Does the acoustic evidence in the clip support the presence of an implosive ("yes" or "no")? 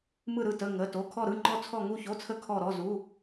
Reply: no